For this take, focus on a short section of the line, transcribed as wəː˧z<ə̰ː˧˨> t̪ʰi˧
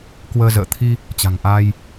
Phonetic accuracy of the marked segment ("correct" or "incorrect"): correct